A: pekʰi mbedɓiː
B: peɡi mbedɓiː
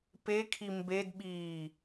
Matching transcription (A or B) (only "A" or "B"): A